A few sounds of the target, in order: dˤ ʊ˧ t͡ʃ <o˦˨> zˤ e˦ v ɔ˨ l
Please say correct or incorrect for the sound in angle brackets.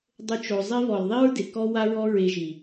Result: incorrect